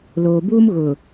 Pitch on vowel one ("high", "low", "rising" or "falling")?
low